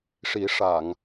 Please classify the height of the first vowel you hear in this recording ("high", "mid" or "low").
high